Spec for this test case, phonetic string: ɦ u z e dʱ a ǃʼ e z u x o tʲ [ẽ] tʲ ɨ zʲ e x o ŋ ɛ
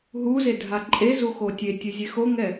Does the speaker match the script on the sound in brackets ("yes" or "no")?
no